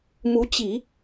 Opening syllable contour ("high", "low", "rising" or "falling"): rising